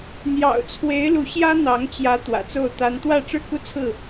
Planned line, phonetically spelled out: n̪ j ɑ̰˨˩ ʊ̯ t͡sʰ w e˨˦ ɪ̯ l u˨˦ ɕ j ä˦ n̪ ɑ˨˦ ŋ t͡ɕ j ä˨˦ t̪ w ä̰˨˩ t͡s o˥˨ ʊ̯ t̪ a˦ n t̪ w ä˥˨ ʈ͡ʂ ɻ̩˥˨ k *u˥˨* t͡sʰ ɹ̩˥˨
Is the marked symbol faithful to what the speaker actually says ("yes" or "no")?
no